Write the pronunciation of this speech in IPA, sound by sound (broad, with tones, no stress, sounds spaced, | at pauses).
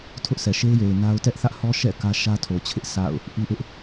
tʰ ʊ˦ ʔ sʰ ɛ˨ ʃ e˦ ɪ̯ j e˨ ɪ̯ n a˦ ʊ̯ t ɛ˦ ʔ θ ä˦ ʔ h ɔ˦ ʃ ɛ̰˦˨ k ä˦ ʃ ä˦ tʰ o˨ t͡ɕʰ ɪ˦ ʔ sʰ a̰˦˨ ʊ̯ | ʔ i˦ ʔ ɪ˦ ʔ